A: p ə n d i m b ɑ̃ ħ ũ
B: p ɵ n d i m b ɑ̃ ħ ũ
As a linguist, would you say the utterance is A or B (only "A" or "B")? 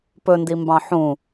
B